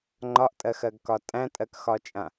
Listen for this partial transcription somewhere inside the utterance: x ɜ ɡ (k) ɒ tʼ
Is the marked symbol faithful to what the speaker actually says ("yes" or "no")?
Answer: yes